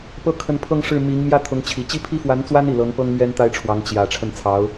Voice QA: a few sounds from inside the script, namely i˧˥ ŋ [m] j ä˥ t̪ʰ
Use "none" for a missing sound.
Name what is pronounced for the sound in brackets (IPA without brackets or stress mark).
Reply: m